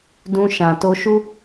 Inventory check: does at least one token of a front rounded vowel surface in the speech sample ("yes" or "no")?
no